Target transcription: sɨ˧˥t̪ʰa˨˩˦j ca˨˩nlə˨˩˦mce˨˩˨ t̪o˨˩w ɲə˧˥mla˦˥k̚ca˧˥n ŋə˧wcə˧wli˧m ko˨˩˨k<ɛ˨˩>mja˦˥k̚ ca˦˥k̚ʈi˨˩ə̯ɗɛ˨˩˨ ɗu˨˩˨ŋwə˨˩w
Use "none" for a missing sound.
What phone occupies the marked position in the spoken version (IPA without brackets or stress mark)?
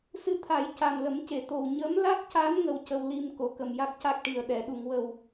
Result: ə˨˩